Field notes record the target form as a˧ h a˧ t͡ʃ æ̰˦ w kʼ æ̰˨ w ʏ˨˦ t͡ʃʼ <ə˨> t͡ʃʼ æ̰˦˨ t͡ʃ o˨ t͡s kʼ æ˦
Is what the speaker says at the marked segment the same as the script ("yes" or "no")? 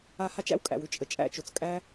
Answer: yes